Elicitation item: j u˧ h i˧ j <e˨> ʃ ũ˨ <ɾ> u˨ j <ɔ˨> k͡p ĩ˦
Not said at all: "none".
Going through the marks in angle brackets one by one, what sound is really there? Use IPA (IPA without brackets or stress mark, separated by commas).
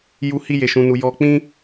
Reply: e˨, n, ɔ˧